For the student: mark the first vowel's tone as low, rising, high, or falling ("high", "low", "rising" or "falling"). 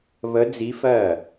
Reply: rising